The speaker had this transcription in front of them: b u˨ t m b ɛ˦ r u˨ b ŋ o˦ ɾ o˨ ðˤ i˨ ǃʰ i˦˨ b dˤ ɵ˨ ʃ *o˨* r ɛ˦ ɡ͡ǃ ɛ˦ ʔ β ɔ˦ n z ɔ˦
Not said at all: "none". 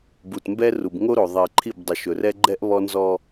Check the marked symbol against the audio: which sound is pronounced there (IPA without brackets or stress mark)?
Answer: ɵ˨